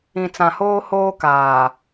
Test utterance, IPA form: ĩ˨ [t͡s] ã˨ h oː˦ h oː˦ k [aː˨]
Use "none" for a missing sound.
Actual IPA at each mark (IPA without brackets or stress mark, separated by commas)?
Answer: t͡s, aː˨